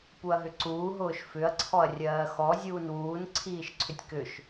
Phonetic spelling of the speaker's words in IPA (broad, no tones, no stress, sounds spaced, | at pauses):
p u ɐ̯ ɦ ʏ ǀ uː ɦ ʊː ʃ f ʏ ɐ̯ ǀʰ ɔ ɐ̯ rʲ ɜː x ɔ zʲ uː n w uː n ǀʰ iː ʃ ǀʰ ʏ tʲ k ʏ ʃ